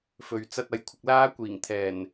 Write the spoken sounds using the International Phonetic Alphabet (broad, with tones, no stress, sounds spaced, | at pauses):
f ɵ˨ ɥ t͡s ɐ˧ t̚ ɐ˨ j kʷʰ ɪ˧ k̚ l aː˥ kʷ iː˨˩ ŋ t̪ʰ ɛː˨˩ n